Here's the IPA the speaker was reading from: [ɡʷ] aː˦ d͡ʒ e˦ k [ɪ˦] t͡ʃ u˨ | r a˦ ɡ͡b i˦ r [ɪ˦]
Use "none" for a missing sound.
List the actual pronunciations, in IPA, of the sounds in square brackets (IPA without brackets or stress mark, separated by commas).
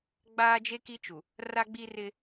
ɡ͡b, i˦, ɪ˦